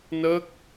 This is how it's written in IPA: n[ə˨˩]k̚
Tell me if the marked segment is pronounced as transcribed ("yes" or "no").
no